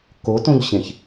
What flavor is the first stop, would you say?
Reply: plain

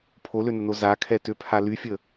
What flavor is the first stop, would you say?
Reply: aspirated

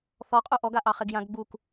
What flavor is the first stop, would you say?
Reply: ejective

